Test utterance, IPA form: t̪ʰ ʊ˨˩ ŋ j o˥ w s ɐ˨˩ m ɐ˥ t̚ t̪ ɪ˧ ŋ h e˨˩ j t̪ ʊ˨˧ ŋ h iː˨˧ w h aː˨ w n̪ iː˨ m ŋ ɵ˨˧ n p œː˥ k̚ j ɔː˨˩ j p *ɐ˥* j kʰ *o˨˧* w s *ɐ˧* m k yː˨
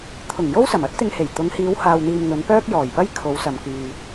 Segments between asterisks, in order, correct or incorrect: correct, correct, incorrect: ɐ˨

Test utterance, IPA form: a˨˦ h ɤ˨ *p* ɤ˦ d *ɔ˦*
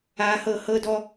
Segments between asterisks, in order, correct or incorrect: incorrect: h, correct

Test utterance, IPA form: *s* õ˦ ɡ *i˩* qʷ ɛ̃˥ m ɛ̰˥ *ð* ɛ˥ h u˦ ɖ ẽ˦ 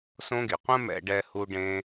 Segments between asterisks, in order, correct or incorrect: correct, incorrect: i˨, incorrect: ɖ

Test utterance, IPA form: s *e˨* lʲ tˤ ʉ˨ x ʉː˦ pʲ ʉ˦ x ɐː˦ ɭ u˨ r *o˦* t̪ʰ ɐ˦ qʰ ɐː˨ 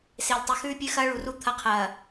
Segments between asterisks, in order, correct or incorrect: correct, incorrect: u˦

